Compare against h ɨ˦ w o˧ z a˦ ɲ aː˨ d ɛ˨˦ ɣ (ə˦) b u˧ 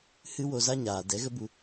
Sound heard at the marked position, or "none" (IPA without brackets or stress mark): ə˦